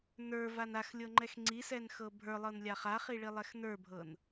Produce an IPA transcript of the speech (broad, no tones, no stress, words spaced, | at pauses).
nə˞van axlʲɤŋ͡ǃɛx ŋ͡ǀisɛnxɤ bʱə˞lˠɤnlʲa χaχiɭilˠɛx nə˞bʱɤn